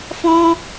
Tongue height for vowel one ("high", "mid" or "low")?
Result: mid